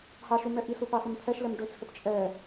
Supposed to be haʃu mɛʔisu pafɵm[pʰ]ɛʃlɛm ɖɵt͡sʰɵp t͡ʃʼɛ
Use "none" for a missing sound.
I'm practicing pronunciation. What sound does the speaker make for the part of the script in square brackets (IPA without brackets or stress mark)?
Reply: pʰ